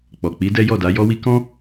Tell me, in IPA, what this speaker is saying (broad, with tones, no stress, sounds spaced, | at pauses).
k͡p ɔ˨ k͡p i˨˦ d ɛ˦ j ɔ˦˨ d a˨˦ j ɔ˦ w i˦ k ɔ̃˦